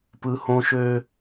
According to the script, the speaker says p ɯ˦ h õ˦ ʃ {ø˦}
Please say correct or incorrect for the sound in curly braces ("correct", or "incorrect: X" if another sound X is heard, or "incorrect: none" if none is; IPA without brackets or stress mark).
correct